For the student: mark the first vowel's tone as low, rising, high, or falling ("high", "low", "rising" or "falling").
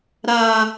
high